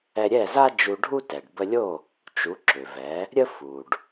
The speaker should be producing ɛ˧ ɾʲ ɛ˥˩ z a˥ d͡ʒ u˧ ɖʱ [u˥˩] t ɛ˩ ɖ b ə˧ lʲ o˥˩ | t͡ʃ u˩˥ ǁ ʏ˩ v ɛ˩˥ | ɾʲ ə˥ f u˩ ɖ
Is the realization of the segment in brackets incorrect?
yes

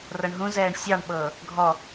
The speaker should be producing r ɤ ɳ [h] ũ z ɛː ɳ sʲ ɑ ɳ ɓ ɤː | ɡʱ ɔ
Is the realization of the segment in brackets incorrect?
yes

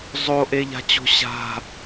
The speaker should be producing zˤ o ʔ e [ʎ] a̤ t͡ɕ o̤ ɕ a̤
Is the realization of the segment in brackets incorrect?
no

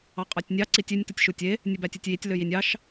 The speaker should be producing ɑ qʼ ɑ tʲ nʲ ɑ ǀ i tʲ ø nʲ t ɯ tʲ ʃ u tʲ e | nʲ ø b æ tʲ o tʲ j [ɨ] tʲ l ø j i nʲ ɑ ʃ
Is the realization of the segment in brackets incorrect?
yes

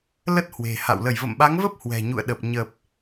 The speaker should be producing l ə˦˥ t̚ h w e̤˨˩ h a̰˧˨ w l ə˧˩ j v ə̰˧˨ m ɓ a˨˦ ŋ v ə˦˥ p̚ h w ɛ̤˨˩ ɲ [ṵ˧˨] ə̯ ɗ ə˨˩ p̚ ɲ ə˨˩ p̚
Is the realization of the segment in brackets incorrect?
no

